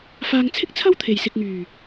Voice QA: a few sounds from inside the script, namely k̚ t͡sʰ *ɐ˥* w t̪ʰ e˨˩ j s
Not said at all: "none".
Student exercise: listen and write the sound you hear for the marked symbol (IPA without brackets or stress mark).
ɐ˥